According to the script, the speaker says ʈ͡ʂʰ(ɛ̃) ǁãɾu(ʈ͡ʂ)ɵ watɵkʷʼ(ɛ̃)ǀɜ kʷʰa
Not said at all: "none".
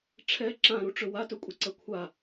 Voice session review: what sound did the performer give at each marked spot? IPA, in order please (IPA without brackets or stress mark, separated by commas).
ɛ, ʈ͡ʂ, ɛ